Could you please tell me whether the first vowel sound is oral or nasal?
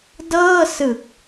oral